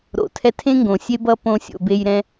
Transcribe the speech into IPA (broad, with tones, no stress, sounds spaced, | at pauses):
ɾ o̰˨ tʰ ɛ˧ tʰ ẽ˦ ŋ ɡ õ˨ sʲ e˦ b ʌ˦ p õ˧ sʲ o̰˨ b e˧ j ɾ ɛ̃˧